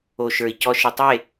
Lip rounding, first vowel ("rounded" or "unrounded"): rounded